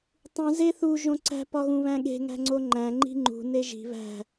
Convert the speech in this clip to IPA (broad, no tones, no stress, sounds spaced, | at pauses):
tˤ ũ z e θ u ʒ õ ǀ æ̤ p ɒ ɣ ũ β æ̃ ɠ e̤ ŋ æ̤ ŋ͡ǀ o ŋ͡ǃ æ̃ ŋ͡ǃ i̤ ŋ͡ǃ ṳ n e ʒ i̤ β æ̤